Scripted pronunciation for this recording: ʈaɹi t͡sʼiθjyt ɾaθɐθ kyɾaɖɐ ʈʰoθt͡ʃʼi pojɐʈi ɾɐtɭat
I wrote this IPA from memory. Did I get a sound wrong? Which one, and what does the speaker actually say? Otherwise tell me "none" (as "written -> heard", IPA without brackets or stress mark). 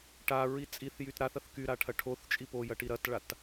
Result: ɖ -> ʈʰ